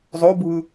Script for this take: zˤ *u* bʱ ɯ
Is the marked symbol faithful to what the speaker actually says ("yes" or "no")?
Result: no